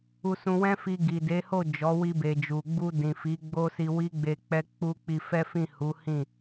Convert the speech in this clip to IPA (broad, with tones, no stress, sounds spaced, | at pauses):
u˧ s ũ˧ w ɛ̃˦ f i˧ ɡ i˨ d e˨˦ h o˦˨ d͡ʒ ɔ˨˦ w i˧ b e˨ d͡ʒ u˨ ɡ͡b u˧ d ĩ˨ f i˨˦ ɡ͡b o˦ s i˧ w i˦ ɡ͡b e˧ k͡p ɛ˦ k͡p u˦ k͡p i˧ f ɛ˦ f ĩ˦˨ h u˨˦ h ĩ˦˨